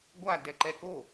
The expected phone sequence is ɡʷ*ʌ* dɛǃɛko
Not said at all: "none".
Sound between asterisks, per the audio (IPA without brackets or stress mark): a